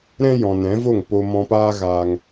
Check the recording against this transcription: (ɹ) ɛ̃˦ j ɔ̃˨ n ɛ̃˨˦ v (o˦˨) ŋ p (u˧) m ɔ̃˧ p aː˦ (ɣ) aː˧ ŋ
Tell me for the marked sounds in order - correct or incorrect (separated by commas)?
incorrect, correct, incorrect, correct